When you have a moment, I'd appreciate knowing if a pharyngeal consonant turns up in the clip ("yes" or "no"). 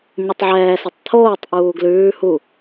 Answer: yes